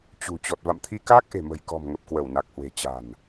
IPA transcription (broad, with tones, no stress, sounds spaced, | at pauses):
t͡ɕ ṳ˨˩ t͡ɕ ɔ˨˩ t̚ v a̰˧˨ m t̪ʰ i˧ k aː˦˥ k̚ ʔ e̤˨˩ m ə̤˨˩ j k ɔ̤˨˩ m ŋ ə˨˩ p̚ k w ə˧˩ w n a˨˩ k̚ h w e̤˨˩ t͡ɕ a̤˨˩ n